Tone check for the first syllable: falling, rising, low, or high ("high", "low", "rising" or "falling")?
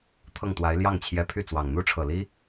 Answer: falling